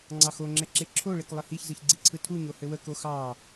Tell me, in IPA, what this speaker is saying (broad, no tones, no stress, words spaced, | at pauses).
ŋ͡ǀɑxoŋ͡ǁɛ ǁeǁʰoɭek lˠɘhiçzɯç ɡ͡ǀiǀʰɯtʰuɲo hɘwəko xɑ